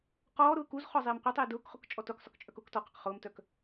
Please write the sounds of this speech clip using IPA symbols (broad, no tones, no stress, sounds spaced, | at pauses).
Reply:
q ɔː ɾ ʊː k u z χ ɔ zˤ eː m qʷ œ tˤ eː d ʊː k χ ʊ k t͡ʃʼ ɔ t ʊ k sˤ ʊ k t͡ʃʼ œ k ʊː k t ɔ q ʊ q χ ʊː m t œ k